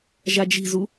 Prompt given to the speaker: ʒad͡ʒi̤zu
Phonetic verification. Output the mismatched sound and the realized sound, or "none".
none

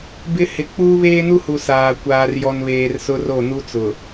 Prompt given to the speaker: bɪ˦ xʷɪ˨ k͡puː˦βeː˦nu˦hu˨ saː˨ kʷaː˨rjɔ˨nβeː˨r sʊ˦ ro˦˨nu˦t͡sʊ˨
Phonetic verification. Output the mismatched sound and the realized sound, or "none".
xʷ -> h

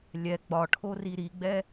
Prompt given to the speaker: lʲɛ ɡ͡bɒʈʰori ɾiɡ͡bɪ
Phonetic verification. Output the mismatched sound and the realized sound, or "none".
ɪ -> ɛ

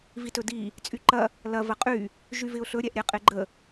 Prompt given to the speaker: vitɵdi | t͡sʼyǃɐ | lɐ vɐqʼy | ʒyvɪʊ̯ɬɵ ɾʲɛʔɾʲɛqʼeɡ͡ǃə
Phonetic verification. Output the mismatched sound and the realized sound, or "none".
none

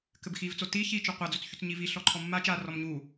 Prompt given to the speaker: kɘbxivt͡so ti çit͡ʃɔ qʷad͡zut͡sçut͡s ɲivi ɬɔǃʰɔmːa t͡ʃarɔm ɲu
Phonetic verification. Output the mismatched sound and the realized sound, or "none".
none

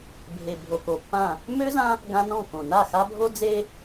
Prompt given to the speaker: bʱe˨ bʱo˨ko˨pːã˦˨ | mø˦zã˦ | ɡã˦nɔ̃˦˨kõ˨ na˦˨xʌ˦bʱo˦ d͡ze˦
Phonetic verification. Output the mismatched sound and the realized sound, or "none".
ʌ˦ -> a˦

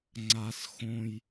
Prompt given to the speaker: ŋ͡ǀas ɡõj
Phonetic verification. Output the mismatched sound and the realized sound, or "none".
ɡ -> x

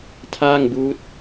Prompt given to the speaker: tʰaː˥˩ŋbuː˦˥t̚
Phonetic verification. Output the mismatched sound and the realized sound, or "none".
none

